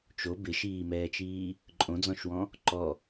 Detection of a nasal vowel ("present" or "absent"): present